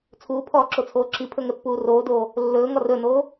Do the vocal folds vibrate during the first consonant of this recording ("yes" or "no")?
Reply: no